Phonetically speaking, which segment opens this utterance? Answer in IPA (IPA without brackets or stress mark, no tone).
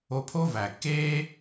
o